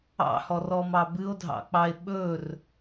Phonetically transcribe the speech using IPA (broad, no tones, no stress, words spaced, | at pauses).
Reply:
ɑ̰hɔrɔmɑ bɨo̯dʱɑ̰k͡pɑe̯ ɓɵr